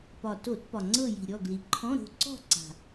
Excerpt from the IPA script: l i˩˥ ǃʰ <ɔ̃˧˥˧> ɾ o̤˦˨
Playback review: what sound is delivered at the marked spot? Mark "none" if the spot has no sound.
ɔ̃˧˥˧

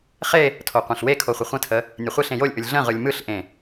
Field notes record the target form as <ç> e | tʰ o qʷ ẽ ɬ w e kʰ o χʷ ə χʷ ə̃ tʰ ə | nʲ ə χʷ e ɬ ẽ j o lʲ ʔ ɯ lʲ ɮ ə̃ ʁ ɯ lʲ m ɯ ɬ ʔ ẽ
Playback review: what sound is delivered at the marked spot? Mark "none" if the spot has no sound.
χ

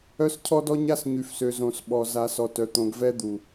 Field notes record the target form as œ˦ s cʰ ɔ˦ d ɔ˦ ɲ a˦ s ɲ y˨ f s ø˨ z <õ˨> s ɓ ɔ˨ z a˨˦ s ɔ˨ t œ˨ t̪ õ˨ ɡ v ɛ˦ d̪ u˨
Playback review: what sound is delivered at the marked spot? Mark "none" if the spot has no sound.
õ˨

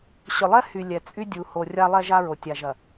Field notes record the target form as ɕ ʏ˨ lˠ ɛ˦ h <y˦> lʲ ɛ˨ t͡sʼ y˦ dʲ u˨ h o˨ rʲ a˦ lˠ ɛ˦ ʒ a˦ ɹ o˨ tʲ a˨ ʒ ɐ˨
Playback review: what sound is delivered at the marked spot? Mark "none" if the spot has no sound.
y˨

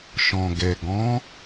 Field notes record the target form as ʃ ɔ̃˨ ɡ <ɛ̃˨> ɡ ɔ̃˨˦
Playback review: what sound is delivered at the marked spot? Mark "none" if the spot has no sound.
ɛ˨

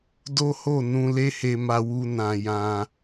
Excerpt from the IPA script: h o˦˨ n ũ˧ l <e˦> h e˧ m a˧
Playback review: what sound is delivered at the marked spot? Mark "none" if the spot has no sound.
e˦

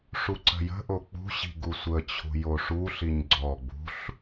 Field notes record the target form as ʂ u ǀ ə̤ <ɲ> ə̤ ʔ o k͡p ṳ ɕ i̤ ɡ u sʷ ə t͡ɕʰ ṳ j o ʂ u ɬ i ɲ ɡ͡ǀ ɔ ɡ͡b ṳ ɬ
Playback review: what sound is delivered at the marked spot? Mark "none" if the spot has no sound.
j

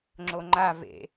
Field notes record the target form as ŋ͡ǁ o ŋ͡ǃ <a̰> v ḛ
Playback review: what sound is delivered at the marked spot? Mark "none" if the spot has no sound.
a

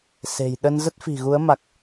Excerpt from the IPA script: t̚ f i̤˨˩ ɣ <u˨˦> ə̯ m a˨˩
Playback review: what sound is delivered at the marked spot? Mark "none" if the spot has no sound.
u˨˦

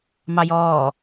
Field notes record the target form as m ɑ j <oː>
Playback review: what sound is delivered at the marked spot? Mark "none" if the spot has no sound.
ɔː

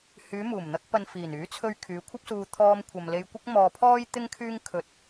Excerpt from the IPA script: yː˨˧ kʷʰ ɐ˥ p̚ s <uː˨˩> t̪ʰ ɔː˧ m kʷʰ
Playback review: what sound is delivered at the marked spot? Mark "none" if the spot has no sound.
uː˧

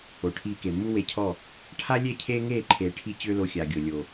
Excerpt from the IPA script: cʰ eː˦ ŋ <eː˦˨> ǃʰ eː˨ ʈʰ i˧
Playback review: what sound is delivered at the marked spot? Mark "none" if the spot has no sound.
eː˦˨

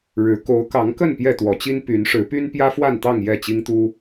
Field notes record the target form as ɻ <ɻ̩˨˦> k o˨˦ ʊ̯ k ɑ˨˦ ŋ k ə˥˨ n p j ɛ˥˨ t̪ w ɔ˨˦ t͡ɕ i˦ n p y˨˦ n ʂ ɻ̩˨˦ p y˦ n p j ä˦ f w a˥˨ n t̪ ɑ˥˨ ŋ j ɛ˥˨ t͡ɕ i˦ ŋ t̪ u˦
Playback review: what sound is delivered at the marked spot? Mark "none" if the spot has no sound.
ɻ̩˨˦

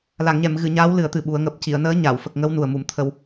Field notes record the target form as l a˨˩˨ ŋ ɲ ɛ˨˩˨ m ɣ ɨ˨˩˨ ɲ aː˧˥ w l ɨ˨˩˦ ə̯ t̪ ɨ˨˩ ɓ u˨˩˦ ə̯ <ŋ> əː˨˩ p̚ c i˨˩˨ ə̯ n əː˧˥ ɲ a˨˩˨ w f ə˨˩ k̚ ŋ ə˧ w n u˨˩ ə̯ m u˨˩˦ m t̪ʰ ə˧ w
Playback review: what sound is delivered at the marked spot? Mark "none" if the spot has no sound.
ŋ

